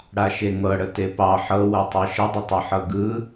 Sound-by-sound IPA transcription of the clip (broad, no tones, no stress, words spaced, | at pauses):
ɽaʃeŋɤɽə tepɑ ħɤwɤtˤɤ ʃədˤətˤɤ ħɤɡɯ